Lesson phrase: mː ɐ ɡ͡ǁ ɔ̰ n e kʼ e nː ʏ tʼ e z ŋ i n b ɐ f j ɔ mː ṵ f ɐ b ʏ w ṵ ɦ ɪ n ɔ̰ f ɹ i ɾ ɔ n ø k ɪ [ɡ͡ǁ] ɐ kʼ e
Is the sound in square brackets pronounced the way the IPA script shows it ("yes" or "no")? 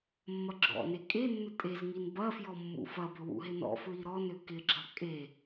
yes